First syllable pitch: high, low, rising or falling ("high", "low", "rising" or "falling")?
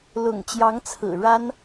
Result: low